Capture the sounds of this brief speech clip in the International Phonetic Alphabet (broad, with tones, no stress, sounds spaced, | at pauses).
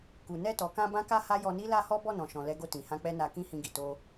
k u˨ n ɛ˧ t ɔ˨ k ã˧ b ã˦ k a˦ h a˦ j ɔ˧ n i˦ l a˦ h ɔ˦ b ɔ˦˨ n ɔ̃˨ ʃ ɔ̃˨ l ɛ˨˦ ɡ o˧ t ĩ˨ h ã˧ k͡p ɛ˦ n a˧ k ĩ˦ h ĩ˧ ɡ i˨ t o˧